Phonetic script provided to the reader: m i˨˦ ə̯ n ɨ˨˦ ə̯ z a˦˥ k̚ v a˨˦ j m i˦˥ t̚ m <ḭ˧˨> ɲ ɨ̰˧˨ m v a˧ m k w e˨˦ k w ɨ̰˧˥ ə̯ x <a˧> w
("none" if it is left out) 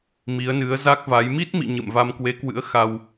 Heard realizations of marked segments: ḭ˧˨, a˧

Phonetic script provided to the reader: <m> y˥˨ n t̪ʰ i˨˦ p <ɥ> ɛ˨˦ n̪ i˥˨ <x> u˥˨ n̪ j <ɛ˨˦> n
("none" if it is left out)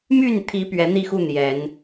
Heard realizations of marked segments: m, ɥ, x, ɛ˨˦

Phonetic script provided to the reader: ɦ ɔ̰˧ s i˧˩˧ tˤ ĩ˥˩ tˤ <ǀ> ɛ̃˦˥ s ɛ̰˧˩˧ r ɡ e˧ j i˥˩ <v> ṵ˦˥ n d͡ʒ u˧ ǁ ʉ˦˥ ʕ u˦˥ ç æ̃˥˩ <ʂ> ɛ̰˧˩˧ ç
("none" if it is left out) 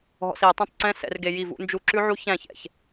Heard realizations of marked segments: ǀ, v, ç

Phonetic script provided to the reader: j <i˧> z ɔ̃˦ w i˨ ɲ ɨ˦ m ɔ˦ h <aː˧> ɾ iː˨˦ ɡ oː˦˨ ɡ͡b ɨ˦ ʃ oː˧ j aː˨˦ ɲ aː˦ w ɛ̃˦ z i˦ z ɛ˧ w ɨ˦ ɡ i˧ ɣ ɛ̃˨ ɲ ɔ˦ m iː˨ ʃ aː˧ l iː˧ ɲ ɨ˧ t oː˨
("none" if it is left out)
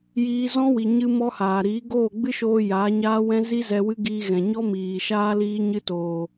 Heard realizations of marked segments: iː˧, aː˨

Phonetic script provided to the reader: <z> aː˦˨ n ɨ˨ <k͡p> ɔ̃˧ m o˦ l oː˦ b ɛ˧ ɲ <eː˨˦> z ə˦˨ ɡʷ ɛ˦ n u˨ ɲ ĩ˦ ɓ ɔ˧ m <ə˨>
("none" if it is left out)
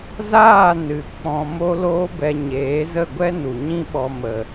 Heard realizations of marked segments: z, k͡p, eː˨˦, ə˨

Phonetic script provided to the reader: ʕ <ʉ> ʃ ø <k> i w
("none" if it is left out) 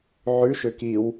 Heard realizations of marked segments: ʉ, k

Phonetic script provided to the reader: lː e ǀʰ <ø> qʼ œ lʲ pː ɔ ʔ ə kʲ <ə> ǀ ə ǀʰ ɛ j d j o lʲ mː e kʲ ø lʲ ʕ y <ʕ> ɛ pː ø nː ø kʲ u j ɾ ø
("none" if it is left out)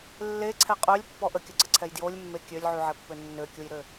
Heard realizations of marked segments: ɛ, ə, ʕ

